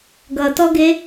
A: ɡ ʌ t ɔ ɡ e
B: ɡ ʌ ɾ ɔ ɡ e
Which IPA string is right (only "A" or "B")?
A